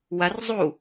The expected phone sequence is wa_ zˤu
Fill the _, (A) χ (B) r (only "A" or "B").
B